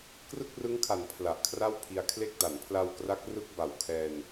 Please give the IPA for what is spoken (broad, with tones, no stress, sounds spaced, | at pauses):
k r ɯ˥˩ k̚ r ɯ˦˥ ŋ kʰ a˩˦ n pʰ l a˨˩ ʔ kʰ r a˥˩ w pʰ i˧ a̯ kʰ l e˥˩ k̚ d a˩˦ n pʰ l a˧ w k r a˦˥ k̚ r ɯ˥˩ k̚ b a˨˩ w kʰ ɛː˧ n